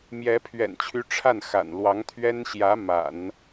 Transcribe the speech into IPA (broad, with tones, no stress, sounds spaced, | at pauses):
m j ɛ˧˥ pʰ ɥ ɛ̰˨˩ n t͡ɕʰ y˧˥ ʈ͡ʂʰ a˥˩ n x a̰˨˩ n l w ɑ˧˥ ŋ t̪ʰ ɥ ɛ˥ n ɕ j ä˧˥ m a̰˨˩˦ n